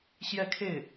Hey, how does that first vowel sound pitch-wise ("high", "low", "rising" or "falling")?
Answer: falling